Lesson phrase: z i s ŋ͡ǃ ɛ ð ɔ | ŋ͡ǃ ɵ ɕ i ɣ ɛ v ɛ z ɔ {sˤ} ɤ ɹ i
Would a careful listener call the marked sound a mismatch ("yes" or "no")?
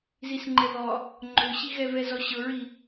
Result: yes